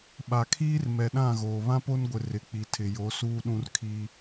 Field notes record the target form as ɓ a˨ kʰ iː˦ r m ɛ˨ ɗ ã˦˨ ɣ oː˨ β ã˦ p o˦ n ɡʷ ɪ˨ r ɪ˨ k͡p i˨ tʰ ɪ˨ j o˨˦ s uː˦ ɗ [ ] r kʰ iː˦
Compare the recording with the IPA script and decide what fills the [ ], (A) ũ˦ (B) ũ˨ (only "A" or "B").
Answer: A